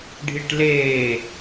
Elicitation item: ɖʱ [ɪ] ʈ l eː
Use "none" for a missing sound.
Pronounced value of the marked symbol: i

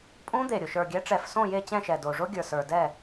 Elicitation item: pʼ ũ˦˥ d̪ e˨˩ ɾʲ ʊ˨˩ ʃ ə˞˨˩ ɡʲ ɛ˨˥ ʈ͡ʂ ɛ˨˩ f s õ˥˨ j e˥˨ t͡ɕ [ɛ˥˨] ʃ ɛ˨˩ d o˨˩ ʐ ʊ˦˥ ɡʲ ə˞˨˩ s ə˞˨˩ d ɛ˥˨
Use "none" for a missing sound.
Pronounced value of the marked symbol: ɛ̃˥˨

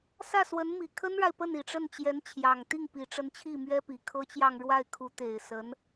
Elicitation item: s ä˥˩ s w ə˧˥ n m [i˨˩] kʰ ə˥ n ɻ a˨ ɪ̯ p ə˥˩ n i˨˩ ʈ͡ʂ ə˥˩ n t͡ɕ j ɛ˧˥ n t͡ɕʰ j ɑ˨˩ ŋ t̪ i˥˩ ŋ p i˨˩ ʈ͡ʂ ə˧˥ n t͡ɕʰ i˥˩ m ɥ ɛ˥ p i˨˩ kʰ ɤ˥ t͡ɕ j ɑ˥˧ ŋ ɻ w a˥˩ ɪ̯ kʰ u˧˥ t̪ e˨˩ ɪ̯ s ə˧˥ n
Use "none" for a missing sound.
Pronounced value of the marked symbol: i˨˩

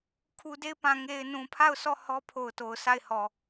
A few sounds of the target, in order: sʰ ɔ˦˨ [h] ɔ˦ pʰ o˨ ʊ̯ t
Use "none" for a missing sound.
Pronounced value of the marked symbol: h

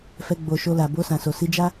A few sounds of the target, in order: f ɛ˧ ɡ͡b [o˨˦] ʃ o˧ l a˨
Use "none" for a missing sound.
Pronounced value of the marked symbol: o˨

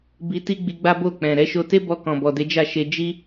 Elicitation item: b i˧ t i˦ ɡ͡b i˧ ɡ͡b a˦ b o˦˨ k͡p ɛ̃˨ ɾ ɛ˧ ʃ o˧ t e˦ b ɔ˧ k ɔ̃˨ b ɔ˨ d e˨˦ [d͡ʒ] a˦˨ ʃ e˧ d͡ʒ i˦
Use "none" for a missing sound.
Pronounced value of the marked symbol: d͡ʒ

